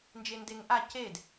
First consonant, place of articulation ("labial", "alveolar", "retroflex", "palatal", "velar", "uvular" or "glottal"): alveolar